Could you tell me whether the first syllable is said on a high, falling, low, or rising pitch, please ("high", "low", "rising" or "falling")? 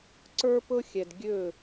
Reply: high